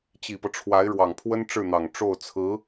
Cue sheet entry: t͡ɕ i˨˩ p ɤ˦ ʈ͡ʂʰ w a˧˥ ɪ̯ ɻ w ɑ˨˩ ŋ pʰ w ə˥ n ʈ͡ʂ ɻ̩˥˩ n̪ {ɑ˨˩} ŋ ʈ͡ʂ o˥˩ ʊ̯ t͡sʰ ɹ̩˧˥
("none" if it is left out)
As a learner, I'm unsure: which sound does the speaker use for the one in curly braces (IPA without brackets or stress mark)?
ɑ˨˩